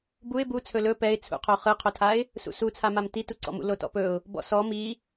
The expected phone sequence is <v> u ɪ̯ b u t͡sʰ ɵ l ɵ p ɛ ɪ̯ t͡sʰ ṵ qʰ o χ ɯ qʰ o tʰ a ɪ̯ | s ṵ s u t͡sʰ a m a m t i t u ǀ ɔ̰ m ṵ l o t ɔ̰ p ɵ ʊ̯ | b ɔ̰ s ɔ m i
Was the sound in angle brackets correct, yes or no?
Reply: no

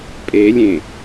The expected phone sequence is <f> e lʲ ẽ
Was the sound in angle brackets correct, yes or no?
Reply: no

